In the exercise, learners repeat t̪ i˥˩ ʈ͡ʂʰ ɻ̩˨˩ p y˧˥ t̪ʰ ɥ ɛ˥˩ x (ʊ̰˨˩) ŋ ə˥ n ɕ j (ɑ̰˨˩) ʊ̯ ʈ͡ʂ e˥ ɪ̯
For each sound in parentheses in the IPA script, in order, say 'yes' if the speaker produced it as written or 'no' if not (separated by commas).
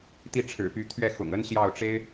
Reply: yes, no